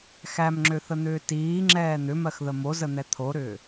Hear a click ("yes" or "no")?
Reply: yes